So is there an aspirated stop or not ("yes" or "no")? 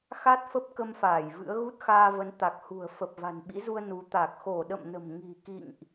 no